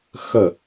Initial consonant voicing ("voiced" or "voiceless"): voiceless